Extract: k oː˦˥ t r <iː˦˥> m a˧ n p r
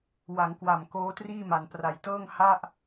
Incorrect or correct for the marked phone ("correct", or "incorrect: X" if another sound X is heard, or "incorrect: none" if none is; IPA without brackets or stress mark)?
incorrect: iː˥˩